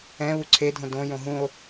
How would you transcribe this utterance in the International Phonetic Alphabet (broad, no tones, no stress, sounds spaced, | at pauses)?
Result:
ɛ̃ β u ǀʰ e dʱ õ d õ j õ ɦ ũ o̯